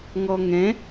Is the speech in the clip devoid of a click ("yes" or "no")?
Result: yes